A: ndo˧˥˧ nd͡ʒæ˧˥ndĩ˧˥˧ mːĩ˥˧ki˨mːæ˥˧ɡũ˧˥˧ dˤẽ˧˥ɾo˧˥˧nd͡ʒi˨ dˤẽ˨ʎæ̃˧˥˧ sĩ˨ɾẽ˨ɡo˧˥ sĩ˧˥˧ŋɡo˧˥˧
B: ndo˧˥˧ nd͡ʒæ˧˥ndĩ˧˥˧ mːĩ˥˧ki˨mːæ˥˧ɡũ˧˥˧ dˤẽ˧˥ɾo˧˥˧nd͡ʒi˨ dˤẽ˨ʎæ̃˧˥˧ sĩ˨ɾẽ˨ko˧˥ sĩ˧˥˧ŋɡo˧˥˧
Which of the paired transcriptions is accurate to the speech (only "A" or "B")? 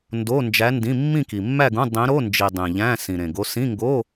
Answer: A